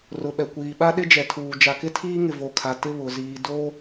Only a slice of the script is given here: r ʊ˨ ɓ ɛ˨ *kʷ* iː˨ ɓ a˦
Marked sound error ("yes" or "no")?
no